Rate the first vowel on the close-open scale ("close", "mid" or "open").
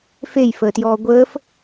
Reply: mid